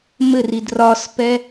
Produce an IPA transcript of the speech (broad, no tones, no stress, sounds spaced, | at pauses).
m ɘ r i d r ɒ s p ɛ